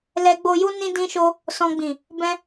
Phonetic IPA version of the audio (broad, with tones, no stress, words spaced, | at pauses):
lɛ˧ɡ͡bo˧ju˦ nĩ˦dĩ˦ʃo˦ | sɔ̃˧ɡ͡bĩ˨ | bɛ̃˦